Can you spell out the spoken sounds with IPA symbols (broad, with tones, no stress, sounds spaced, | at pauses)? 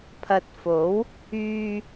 pʰ ɐ˨ t̚ f o˨˥ w | yː˧